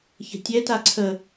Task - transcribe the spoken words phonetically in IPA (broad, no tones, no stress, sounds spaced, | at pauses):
ç ə̤ tʲ ɛ t a ǀʰ ə